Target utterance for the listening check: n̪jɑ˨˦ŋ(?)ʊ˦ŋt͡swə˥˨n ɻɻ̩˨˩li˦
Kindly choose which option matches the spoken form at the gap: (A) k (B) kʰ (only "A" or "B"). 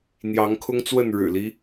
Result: B